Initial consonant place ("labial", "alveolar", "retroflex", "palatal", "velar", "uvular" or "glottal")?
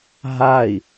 glottal